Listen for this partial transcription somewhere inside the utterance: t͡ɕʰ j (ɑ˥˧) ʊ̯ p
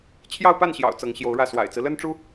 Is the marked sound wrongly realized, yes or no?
no